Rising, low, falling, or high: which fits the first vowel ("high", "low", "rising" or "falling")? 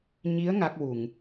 rising